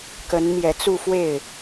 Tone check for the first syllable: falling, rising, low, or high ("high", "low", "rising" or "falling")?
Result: rising